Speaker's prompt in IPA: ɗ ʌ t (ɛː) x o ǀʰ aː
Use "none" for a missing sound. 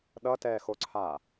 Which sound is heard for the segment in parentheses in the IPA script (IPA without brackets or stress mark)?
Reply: ɛː